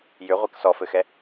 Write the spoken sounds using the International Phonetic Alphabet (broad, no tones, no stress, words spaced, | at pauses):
jʏʁʷɛk sɔfɘxɛ